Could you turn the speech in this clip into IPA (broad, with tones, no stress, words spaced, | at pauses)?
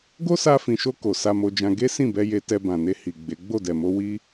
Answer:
ɡo˦sa˧fĩ˨ʃo˧ ko˨sa˧mo˧d͡ʒã˧ ɡe˦sĩ˦˨bɛ˧ je˧ tɛ˧bã˨ne˧ hi˨ ɡ͡be˨˦ ɡ͡bo˦˨dɛ˨mo˧ wi˦